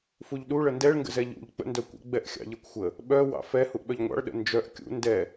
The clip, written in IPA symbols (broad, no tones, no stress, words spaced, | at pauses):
fuʎɗu ɭəndɛɭ ŋɡə̰zɛʎṵʎ k͡pə̰ndœkʷə̰ ɡ͡bɛʔxʲɑ̰ʎɛkʷxʷə | ɓœ wɑ̰fɛ huʔɓœʎŋʷɑ̰ɭ ɗə̰nd͡ʒœʔ kʲṵ ndɛ